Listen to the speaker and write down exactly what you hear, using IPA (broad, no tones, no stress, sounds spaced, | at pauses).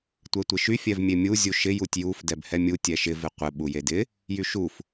tʷ ɛ tʷ ɪ ʃ y fʲ ɛ v mʲ e mʲ u zʲ u ʃ ɪ j u tʲ j u f d ɛ b h ɛ mʲ u tʲ ɛ ʃ ɪ v ɪ qʷ ɪ ɓ u j e d ɪ | j y ʃ u f